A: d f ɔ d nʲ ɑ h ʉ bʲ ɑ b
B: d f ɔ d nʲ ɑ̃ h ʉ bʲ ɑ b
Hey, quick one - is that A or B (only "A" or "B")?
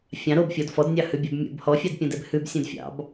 A